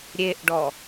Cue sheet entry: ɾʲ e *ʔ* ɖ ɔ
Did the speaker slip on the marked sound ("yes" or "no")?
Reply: no